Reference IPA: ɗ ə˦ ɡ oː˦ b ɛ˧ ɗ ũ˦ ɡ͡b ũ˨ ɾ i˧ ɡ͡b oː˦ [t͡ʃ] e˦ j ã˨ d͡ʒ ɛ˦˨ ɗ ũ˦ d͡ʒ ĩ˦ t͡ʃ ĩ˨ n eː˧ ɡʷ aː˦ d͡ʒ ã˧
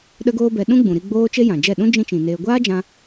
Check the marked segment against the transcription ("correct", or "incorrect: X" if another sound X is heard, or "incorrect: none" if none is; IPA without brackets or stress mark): correct